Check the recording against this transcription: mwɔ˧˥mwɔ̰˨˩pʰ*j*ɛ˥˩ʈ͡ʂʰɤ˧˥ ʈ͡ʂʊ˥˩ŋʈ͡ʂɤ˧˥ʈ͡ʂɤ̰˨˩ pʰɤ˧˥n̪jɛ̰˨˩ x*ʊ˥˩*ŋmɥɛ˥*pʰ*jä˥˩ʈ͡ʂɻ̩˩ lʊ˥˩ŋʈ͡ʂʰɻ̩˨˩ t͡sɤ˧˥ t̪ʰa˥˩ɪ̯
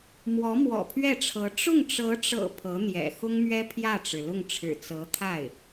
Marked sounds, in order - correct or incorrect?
incorrect, incorrect, correct

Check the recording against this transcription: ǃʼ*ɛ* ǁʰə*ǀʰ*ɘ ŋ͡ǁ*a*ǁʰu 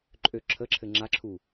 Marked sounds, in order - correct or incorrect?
incorrect, incorrect, correct

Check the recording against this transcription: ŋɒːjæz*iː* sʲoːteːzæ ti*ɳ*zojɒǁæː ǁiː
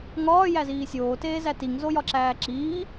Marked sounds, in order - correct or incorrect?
correct, incorrect

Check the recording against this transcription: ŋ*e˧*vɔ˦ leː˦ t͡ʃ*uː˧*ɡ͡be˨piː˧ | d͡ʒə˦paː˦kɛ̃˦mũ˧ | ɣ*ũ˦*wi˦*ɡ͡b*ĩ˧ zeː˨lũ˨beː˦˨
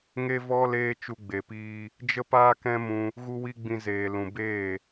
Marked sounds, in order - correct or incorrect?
incorrect, incorrect, incorrect, correct

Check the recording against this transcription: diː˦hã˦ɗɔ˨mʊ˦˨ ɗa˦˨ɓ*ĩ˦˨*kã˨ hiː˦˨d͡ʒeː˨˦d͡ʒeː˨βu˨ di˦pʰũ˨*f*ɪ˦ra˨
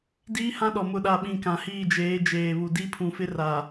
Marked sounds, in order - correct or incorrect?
correct, correct

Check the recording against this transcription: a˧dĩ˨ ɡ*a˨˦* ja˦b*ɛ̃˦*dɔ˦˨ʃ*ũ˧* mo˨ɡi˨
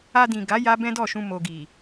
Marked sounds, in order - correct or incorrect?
correct, correct, correct

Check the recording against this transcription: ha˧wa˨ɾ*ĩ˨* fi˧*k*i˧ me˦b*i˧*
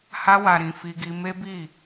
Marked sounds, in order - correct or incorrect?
correct, incorrect, incorrect

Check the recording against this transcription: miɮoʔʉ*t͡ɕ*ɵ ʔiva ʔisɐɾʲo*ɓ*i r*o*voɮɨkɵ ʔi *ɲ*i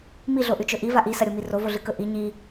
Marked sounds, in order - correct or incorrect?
incorrect, incorrect, correct, correct

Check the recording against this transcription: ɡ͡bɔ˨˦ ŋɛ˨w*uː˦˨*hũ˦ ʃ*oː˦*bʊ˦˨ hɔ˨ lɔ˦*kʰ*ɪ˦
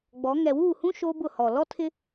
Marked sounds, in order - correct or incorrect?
correct, correct, incorrect

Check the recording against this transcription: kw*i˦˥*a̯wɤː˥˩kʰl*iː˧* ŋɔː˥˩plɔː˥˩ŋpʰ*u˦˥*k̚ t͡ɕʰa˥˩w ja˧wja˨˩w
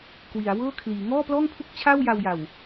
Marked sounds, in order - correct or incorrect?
incorrect, incorrect, incorrect

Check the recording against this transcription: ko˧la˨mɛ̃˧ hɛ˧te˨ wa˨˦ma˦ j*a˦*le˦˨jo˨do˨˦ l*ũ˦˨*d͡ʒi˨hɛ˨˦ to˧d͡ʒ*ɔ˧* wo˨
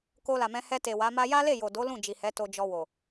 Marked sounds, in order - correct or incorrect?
correct, correct, correct

